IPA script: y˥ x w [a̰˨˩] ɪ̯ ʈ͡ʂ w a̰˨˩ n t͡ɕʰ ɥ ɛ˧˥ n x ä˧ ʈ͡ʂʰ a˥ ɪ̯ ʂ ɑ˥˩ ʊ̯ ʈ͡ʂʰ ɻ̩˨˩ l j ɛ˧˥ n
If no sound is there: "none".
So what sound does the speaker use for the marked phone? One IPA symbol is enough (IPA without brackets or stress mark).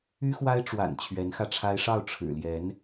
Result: a˥